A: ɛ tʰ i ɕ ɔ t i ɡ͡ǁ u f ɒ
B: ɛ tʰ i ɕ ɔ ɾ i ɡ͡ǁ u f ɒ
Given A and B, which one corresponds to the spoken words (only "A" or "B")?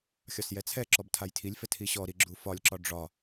B